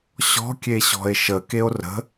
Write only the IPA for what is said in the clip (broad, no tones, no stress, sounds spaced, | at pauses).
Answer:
ɕ ɔ̤ kʲ e ɕ ɔ̤ e̯ ʃ ə k e o̯ r ə̤